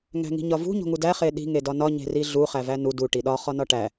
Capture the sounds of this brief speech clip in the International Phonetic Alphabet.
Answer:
ŋ æ̤ ŋ i̤ ɲ ɒ v ṳ ɲ o̤ ŋ u d æ χ e ɗ i̤ ŋ e d ɒ n ɒ ɲ e̤ r i ɮ u χ æ v æ n u d u ʈ i ɗ ɒ χ ɒ n ɒ ʈ æ

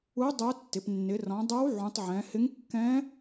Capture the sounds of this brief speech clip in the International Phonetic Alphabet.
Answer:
u˧˥ dˤ o˧˥ tː ɪ˩˧ p nː ɪ˩˧ r ɔ̃˩˧ dˤ o˧˥ w ʕ ũ˩˧ tˤ ʕ ɛ̃˩˧ h ɪ˧˥ ŋ kː ɛ̃˧˥

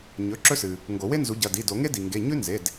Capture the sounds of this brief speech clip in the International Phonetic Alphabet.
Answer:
ɲ ɵ˩˧˩ ǁ ɵ˥ s ɨ˩ | ŋ ɡ o˨˩˦ w e˥ n z u˨˦ ɟ ɐ˩˧˩ d i˩˧˩ d o˨˩˦ ŋ e˥ d i˩ ŋ ɡ e˩˧˩ ɲ ʉ˥ n z e˩˧˩ d

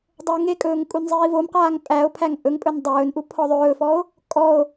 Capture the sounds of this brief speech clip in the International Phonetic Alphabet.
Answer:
dˤ ɵː ŋ e kʼ ɵː ŋ kʼ u n zˤ iː v o m q aː ŋ pʼ æ o̯ pʰ æ ŋ ʔ ɵ ŋ pʼ ɵ n dˤ ɵː n ʔ u pʰ ɔ ðˤ ɵː f ɔ o̯ | kʼ ɔ o̯

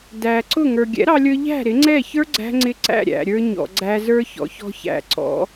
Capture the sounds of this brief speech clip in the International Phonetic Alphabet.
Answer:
d æ˨ ǀ ʊ˦˨ ŋ ə˞˨ ɡʲ ɛ̰˨˦ ɾ ɑ˧ lʲ ə˞˧ ʎ æ̤˦˨ ɾ ɪ˨˦ ŋ͡ǀ ɛ˦˨ ç ə˞˦ ɡ͡ǀ æ̤˦ ŋ͡ǀ ɪ˦ ǀ æ̰˦˨ ɾʲ æ̰˨ ɾʲ ə˞˧ ɲ ɔ̰˨ ɡ͡ǀ æ˧ z ə˞˦ ç ɔ̰˨˦ ç ɔ̤˧ ç æ̰˨ ǀ ɔ̰˨˦

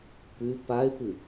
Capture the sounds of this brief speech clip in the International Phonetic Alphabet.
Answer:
p ʉ p a ɪ̯ p ɨ

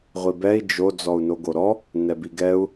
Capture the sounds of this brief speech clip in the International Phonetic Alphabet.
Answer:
ʁʷ i b ɛ i̯ d͡ʒ o d͡z ɔ u̯ n o ɡ o ɾ ɔ | n ɛ b i ɡ ɛ u̯

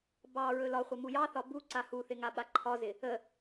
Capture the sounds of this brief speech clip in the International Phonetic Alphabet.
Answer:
b ɑ ɹ ɵ l ɒ χʷ ə m u j ɑ θ ɒ b u ǀ a h u θ ɪ ŋ a ɓ a ǃʰ ɒ z ɪ | ə

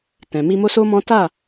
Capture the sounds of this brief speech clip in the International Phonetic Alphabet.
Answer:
t ɛ̃˨ m i˧ m o˦ s o˦ m ɔ̃˦ t a˦˨

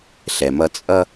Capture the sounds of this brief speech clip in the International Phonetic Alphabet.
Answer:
ɬ ɛ˨ m ʌ˦ t͡sʼ ʌ˦

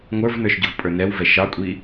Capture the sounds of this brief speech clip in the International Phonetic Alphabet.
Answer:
ŋʷ ə˞ v n ə˞ ʃ ɟ ʊ v pʼ ə˞ n ɛ w v ɛ ʃ ɑ kʷʼ i

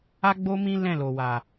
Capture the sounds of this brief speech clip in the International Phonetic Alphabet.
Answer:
a˦ ɡ͡b o˦ m ĩ˦ l ɛ̃˦˨ l o˨ w a˨

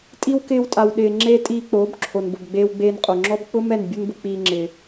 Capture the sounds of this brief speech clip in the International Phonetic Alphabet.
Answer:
tʼ i˧ w k ɪː˧ w tʼ a˨ w ɗ ɪː˨ ŋ͡ǁ e˧ tʼ iː˧ k͡p oː˨˦ b ǁʰ o˨ n b ʊ˨ b ɡ͡b eː˧ w ɡ͡b eː˧ n qʼ o˨ ŋ͡ǁ ɔ˦ b k͡p ʊ˦ m ɛ˦˨ n bʲ u˦ n b ʊ˧ k͡p iː˧ ŋ͡ǁ ɪː˨

